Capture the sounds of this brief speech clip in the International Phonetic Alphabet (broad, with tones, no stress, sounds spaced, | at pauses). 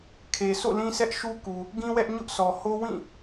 kʰ e˨ s o̰˦˨ l ĩ˦ s ɛ˦ ʔ ʃ u˦ k u˨ | ɡ ĩ˦ w ɛ˦ ʔ ɲ ʊ˦ ʔ sʰ ɔ˨ h o˦ w ĩ˦˨